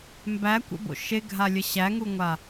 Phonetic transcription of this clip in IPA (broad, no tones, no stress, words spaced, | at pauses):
mbækʷə̰bo̰ ʃeɡʱalʲə ɕæŋuŋʷa